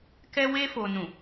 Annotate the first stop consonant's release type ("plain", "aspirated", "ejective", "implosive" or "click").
plain